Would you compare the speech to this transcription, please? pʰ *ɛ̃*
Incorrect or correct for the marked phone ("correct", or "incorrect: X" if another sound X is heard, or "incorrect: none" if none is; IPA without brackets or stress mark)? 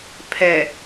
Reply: incorrect: ɛ